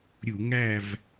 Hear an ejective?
no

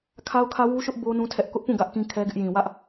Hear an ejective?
no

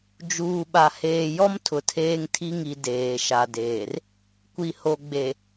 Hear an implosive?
yes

